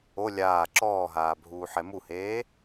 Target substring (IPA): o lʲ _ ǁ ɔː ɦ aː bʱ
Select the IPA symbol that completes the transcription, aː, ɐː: aː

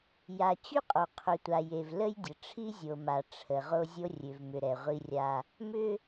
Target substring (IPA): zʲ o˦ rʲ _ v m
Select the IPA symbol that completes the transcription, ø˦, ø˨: ø˨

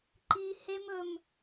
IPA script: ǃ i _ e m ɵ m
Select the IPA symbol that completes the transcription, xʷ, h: h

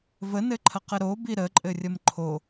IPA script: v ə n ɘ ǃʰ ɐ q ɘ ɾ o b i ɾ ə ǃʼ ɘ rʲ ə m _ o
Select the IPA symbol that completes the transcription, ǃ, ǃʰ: ǃʰ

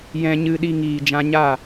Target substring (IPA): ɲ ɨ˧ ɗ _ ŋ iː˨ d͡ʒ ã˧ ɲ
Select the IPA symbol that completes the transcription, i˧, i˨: i˧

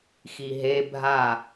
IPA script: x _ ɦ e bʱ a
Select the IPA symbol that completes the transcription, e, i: i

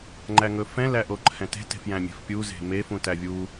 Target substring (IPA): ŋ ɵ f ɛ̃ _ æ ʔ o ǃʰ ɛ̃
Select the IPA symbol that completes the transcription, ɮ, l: l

